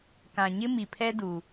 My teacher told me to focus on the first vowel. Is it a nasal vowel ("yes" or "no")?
yes